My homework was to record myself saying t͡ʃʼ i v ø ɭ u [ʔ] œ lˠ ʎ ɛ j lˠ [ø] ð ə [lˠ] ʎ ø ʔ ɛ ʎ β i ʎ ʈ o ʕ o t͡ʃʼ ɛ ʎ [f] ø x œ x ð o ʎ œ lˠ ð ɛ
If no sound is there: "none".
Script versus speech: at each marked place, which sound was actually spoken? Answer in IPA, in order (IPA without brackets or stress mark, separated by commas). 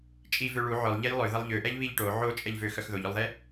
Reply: ʕ, ø, lˠ, v